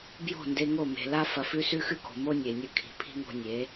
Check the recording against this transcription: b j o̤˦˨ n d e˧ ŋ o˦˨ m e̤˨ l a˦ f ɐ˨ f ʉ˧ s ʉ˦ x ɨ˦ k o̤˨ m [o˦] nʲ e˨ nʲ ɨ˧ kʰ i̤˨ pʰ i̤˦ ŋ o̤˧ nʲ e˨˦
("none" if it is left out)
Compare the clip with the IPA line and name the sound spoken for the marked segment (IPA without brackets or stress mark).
o˦